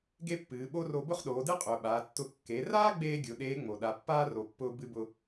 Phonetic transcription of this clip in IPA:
ɡ e˥ pː ɨː˩˧ ɓ o˥ r o˧ b ʊ˥ χ ɗ oː˩˧ d ɨ˥ qʼ ʊː˩ ɓ aː˩˧ tː ʊ˧ kː e˩˧ r aː˥ ɡ͡b eː˥ ɡʲ ʊ˩˧ ɗ eː˧˥ ŋ͡m o˩ ɗ a˩˧ pː aː˥ r o˩ pː ʊː˧ b ɨ˧ b ʊ˧

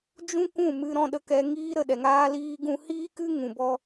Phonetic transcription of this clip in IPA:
d͡ʒ ũ˦ k ũ˦˨ m ɨ˧ ɾ ɔ̃˧ ɗ ə˧ k ɛ˧ ŋ iː˦ ɾ ə˦˨ ɗ ɛ˨ ŋ aː˧ l iː˧ ɡ ũ˧ h iː˦ k ɨ˦ ŋ ũ˨ b ɔ˧

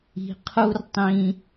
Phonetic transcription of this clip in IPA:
i̤˨ qʰ u˦ r tˤ ĩ˧

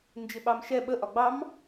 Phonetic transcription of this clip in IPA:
n d͡ʒ ɪ ɓ ɑ m ʃ ɛ ɓ ə ʔ ɒ ɡ͡b ɑ m

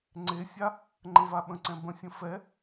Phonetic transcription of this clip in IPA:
ŋ͡ǀ e sʲ a | ŋ͡ǃ ə̃ v a ɓ ə̃ ǀ ɛ̃ b ə̃ sʲ ə̃ f ɛ

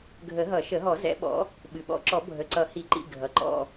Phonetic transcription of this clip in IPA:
ɡʱ ə˨˩˦ ɦ ʌ˨˩˦ ʃ ə˨˩˦ ɦ ɔ˨˩˦ z ɛ̰˨˦ ɓ ɔ̰˨˦ | ɓ ɨ˩ ɓ ɔ̰˨˩˦ ǁ ɔ˨˩˦ bʱ ə˩˧˩ ǀ ʌ˨˩˦ h i˨˩˦ ǃ ḭ˩˧˩ ɡʱ ʌ˩ ǃ ɔ̰˩˧˩

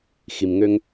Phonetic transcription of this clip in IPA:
x i˩ m ŋ ø˧ ŋ

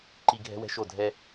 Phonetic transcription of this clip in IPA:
ǃ i˨ ɡʱ ɛ̤˦ w ɛ̤˦ ʃ o˦˨ dʱ ɛ˦

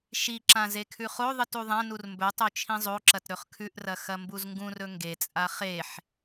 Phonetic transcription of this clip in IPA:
ʃ i ǁ ã z e kʰ ʉ χ o ðˤ ɨ t u ðˤ ã n u r m b ɵ tˤ o t͡ʃʰ ĩ zˤ o ǁ ɐ t ɾ ɵ χ kʰ ʉ ʔ r ɐ x ɐ m b u z ŋ ɡ ũ r ɵ ŋ ɡ e t͡sʼ a χ e ħ

